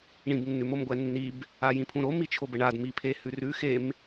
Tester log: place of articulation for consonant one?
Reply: retroflex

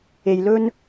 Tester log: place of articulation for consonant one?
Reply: palatal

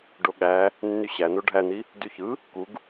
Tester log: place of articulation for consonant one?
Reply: retroflex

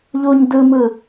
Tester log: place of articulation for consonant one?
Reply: palatal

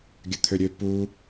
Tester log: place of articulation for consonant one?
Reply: velar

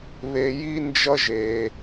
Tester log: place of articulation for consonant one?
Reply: labial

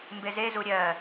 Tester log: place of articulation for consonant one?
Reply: labial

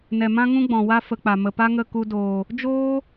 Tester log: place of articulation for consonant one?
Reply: alveolar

